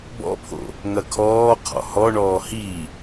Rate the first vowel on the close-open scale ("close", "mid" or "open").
mid